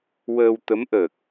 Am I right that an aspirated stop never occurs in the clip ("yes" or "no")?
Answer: yes